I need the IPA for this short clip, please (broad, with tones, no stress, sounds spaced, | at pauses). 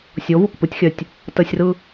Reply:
sʲ o˨˦ v u˨ k p ɯ˧ tʲ xʲ œ˨ tʲ | t ə˧ sʲ r ɯ˧